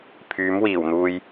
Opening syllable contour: rising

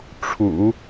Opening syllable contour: low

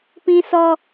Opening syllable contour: high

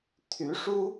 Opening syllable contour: rising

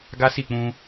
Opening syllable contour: high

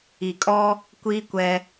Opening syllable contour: low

